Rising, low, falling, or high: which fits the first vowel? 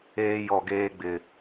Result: high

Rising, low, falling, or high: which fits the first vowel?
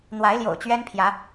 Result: rising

